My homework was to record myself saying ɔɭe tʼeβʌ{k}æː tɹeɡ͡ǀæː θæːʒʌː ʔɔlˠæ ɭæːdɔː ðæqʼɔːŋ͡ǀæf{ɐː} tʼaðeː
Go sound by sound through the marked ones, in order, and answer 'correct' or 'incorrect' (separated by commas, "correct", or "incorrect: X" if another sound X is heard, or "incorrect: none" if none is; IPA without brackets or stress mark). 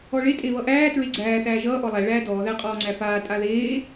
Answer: incorrect: ʔ, incorrect: aː